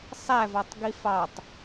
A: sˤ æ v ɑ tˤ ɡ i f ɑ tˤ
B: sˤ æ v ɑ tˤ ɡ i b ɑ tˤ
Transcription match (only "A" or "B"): A